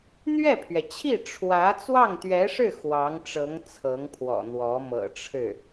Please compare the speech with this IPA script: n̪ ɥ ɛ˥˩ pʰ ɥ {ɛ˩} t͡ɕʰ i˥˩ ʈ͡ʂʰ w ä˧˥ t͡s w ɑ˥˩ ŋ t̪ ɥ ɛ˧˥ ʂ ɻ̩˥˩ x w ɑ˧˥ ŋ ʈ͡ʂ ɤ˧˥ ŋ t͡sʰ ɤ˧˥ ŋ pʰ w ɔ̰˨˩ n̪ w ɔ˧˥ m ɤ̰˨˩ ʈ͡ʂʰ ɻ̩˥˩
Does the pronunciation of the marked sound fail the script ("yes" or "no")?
no